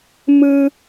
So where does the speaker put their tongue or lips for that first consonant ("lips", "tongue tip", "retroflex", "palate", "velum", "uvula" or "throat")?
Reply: lips